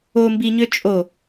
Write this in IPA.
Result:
o m b i ɲ ø t͡ʃʼ o

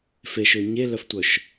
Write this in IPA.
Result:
f e ʃ ø ɲ e l œ f tʷ œ ʃ

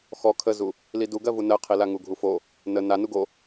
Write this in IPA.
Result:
x ɔ kʰ ə z u | l i d u ɡ ɜ v u n ɜ qʰ i l a ŋ u ɡʱ u f o | n ə n a n u ɡ o

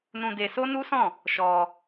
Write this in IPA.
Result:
n ũ˧ d e˧ s o˦ n u˦ s ɔ̃˦˨ | ʃ ɔ˧

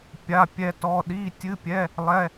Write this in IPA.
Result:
pʲ a˧˥˧ pʲ ɛ˦˥ t ɔ˧˥˧ ɗ i˧˥˧ tʲ ɨ˧˥˧ pʲ ɛ˧˥˧ | lˠ ɛ˧˥˧

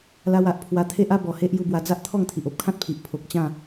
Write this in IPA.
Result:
l a˧ w a˦ ʔ pʰ w a˧ t̪ʰ e˦ ʔ a˦ b ɔ˨˩ h e˦ ʔ j u˧ b w a˧ d͡z a˦ ʔ t̪ʰ ɔ˥˧ ŋ t̪ʰ i˨ ʔ o˦ p̚ kʰ ã˦ t̚ pʰ i˨ ʔ pʰ o˨ k̚ t͡ɕ ã˥˧

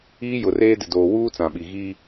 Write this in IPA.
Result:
iː˦ j ʊ˨ r eː˦ d ɪ˨ d oː˨ w uː˦ t͡s ã˨ ɓ i˨ ɣ iː˦

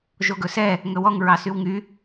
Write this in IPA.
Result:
ʒ o ɡ ɵ s ɛ | ŋ ɵ w ɔ ŋ ɹ ɑ s y w ŋ y

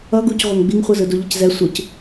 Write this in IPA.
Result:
ʌ ɡ u c ʁʷ ʌ ŋ ɡ͡b i ŋ χʷ ɯ z ɯ d u ʎ ʌ c z ɛ sʷ ɯ c

